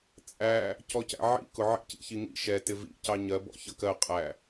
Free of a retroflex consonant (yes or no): yes